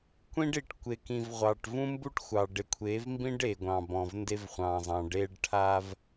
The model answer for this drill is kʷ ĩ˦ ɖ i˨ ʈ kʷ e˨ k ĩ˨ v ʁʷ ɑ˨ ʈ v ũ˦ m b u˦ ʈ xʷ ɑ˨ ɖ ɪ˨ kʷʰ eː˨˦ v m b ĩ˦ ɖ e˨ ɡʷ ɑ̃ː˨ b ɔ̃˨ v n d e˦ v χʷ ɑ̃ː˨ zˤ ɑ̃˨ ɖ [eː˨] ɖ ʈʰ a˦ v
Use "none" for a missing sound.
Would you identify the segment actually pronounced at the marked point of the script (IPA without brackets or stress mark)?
eː˦